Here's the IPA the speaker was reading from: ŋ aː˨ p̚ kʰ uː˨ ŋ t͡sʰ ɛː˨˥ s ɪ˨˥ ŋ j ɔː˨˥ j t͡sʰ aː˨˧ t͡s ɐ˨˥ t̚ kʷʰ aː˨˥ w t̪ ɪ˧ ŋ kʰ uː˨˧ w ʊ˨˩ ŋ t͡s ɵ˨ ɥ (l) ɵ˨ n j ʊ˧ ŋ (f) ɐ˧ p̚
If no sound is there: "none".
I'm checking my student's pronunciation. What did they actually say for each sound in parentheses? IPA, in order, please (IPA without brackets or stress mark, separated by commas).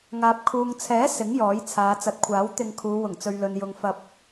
l, f